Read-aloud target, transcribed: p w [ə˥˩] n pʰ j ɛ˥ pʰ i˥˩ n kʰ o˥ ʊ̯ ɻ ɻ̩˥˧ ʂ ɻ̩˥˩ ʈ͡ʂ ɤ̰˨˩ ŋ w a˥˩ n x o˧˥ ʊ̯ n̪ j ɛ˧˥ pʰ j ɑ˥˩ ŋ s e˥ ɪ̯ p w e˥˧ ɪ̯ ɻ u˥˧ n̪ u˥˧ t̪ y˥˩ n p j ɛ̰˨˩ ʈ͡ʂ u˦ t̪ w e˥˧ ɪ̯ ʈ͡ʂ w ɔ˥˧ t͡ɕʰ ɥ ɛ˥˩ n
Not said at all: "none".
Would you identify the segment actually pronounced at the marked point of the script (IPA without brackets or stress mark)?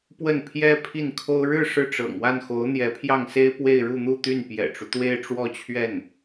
ə˥˩